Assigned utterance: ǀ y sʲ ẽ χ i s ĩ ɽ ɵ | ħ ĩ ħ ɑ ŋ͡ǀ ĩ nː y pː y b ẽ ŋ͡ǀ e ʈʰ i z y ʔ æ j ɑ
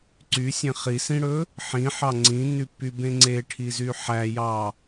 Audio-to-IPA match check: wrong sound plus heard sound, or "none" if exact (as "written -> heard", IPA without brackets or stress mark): ʔ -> ħ